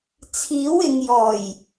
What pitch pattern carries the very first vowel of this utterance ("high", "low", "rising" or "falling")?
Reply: rising